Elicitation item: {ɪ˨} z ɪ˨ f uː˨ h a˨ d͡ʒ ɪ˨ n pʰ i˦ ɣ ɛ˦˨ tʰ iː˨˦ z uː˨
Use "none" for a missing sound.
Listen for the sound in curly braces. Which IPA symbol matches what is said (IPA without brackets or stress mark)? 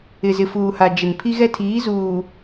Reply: ɪ˨